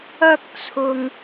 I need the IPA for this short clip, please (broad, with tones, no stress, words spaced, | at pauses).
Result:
ɐ˧k̚t͡sʰʊ˨ŋ